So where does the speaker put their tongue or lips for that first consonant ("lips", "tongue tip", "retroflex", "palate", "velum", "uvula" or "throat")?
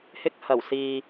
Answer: throat